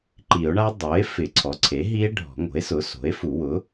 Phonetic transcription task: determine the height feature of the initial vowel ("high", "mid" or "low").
high